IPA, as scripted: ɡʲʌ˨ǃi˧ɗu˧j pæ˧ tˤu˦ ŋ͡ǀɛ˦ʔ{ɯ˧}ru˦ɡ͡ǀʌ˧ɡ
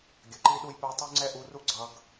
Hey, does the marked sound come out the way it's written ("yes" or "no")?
no